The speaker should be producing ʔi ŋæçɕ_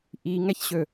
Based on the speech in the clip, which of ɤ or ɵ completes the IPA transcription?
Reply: ɵ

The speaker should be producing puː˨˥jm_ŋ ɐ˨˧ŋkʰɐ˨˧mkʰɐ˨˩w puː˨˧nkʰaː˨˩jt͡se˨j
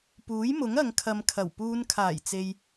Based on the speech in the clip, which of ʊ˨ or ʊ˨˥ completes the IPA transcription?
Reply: ʊ˨˥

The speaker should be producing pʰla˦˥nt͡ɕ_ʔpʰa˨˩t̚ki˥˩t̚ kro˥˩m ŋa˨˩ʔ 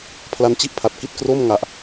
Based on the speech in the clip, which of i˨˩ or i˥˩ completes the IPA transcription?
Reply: i˥˩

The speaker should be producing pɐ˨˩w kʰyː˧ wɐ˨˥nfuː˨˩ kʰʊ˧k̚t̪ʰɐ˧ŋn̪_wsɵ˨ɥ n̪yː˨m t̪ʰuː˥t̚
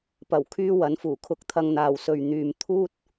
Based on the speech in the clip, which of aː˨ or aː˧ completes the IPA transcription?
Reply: aː˨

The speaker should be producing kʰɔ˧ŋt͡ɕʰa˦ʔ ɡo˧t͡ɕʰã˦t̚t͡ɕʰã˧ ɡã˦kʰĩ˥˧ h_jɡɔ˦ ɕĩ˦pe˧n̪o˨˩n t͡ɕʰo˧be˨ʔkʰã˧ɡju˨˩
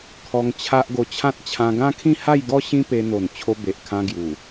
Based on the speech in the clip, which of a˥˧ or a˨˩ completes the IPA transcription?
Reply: a˥˧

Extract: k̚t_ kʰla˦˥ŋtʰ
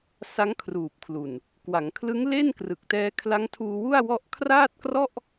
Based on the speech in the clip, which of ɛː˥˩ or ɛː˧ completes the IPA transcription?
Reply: ɛː˧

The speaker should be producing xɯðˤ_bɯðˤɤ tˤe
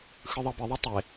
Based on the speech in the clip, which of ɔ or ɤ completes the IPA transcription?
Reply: ɤ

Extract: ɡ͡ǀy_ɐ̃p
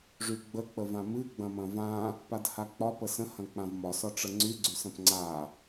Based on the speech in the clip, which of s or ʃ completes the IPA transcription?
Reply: s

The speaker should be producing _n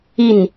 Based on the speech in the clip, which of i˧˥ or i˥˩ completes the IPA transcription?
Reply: i˥˩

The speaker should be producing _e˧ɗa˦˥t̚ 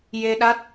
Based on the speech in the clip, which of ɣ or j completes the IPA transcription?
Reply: j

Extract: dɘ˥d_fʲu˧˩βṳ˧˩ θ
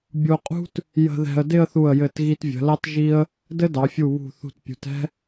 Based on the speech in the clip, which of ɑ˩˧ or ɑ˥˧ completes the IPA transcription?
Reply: ɑ˩˧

